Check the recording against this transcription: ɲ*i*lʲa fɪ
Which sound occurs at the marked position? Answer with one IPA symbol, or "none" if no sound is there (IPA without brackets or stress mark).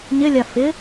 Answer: ɪ